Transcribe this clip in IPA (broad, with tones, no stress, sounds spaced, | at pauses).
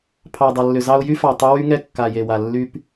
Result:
pʰ ɑ˨ dˤ ɐ˨ lː ʏ˨ z ɑ˧ ʊ̯ j y˧ f ɑ˨ tˤ ʏ˧ w y˧ ŋ ɛ˧ kː a˨ j e˨ w a˨ lː y˧ p